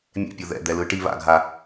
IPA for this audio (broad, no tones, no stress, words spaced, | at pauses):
mʲɛ̰pʲo ðɛ̰d̪ɛlɯ ʈi βa̰ɡʱa